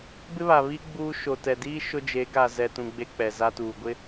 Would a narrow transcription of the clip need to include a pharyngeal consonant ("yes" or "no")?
no